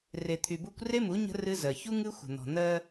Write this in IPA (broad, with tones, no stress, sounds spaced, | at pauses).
r e˨ t̪ʰ y˨ b u˦ kʷ r e˦ m u˨˦ ɲ ə̤˦ r ɨ˦ z ɜ˨ ç u˦ ŋ ɨ˦ xʷ ə̤˨ n̪ ɔ̤˨ n̪ ɜ˦